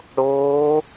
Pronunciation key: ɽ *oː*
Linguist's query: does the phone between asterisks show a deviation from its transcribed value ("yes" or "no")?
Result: no